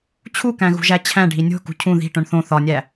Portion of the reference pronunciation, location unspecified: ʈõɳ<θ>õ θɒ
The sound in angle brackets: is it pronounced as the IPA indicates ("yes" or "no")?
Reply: yes